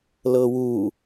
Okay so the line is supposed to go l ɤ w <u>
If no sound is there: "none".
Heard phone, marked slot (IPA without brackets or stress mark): u